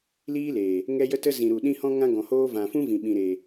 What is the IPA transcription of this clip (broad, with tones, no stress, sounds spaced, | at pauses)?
l iː˦ l eː˨ | ŋ ɛ˦ j ə˦ t ə˦ z ĩ˨ ɾ u˨ ɗ ĩ˧ h ɔ̃˧ ŋ ã˧ ɡ ɔ̃˨ h oː˧ v ã˨ f ũ˦ v ĩ˨ ɓ ĩ˨ ɾ eː˨